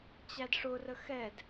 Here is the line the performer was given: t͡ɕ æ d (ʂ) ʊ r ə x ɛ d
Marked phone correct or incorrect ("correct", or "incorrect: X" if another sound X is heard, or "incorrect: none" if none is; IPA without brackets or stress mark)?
correct